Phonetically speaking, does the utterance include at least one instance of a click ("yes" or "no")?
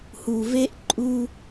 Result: yes